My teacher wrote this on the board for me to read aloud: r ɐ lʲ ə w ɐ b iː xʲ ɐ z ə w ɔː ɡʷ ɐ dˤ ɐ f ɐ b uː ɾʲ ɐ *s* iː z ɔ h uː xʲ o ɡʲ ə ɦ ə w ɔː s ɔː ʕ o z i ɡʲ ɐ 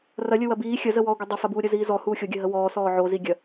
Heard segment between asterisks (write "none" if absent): z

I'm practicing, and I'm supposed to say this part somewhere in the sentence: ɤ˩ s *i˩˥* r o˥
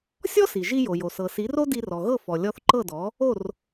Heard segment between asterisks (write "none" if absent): i˩˥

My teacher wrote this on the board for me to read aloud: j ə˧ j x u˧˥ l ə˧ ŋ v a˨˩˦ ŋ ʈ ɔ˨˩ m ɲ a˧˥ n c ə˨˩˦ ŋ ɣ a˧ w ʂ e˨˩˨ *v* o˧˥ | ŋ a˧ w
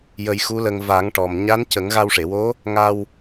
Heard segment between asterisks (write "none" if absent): w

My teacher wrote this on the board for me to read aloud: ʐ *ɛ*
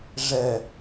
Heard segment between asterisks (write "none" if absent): ɛ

